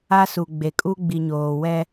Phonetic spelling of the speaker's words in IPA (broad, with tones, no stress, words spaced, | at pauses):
a˦su˨ ɡ͡be˨kʼu˦ ɡ͡bi˨ɲoː˨wɛ˦